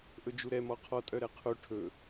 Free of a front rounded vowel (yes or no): no